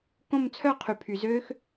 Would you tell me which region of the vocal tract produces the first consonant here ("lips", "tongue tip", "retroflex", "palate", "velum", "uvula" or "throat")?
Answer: velum